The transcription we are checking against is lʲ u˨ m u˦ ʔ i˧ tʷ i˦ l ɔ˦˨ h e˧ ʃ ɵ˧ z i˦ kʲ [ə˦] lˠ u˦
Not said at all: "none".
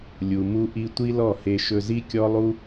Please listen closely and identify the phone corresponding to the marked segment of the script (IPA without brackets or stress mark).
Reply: ɔ˦